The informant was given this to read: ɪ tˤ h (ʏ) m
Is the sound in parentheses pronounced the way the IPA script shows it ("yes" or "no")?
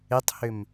yes